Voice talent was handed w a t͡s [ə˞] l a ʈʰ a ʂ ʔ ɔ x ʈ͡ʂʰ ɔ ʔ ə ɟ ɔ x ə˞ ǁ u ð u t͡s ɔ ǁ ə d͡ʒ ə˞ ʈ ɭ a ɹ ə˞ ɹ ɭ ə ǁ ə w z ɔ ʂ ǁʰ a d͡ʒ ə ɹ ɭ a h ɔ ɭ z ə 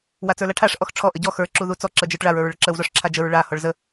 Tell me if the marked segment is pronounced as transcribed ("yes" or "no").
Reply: yes